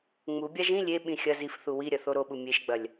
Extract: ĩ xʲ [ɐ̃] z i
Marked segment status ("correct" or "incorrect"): incorrect